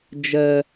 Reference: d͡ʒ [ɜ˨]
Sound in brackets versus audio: correct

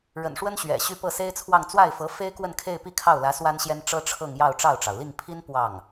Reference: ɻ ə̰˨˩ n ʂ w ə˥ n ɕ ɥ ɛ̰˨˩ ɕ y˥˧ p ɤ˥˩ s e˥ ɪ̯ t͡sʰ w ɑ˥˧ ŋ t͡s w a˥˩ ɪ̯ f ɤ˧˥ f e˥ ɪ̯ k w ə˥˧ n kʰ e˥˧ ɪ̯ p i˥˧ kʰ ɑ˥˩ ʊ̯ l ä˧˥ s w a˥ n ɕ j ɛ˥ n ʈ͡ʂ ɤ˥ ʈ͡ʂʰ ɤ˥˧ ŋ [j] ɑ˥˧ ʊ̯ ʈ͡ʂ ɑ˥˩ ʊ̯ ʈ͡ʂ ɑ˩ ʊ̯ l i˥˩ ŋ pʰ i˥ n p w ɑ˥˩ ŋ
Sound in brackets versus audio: correct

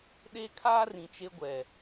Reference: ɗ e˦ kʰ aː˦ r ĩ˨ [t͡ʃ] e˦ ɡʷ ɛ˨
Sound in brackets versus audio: correct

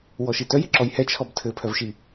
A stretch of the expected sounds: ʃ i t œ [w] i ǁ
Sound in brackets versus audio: incorrect: j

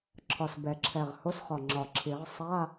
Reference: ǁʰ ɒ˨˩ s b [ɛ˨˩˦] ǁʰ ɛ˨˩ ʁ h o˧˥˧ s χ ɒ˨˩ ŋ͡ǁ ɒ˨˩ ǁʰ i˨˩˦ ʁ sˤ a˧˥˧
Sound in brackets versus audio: correct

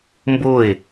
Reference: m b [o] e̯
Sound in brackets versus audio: correct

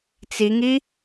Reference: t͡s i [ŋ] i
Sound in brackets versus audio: correct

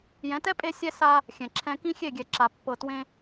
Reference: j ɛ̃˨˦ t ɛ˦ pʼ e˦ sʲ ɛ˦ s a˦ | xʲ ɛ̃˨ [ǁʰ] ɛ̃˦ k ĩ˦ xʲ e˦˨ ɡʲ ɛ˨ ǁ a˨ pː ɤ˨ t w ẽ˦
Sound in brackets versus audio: correct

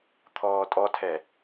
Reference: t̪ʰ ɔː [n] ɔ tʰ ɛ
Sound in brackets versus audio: incorrect: tʼ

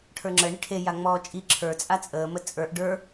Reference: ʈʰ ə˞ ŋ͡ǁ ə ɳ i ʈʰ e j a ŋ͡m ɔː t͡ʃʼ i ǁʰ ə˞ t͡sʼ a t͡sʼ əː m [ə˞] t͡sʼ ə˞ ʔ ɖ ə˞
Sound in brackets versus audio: incorrect: ə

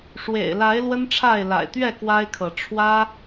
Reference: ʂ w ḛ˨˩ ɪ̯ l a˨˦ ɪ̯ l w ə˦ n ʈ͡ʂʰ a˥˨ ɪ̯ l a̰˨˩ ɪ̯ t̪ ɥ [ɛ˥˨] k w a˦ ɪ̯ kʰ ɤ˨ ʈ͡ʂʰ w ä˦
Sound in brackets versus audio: correct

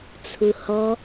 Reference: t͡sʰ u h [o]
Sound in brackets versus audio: incorrect: ɔ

